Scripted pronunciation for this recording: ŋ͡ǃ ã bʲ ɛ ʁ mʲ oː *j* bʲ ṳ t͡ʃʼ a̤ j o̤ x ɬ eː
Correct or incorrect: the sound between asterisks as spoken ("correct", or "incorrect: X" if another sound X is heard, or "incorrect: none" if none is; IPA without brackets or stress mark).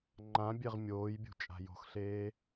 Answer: correct